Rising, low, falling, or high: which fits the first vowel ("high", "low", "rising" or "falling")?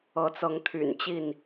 rising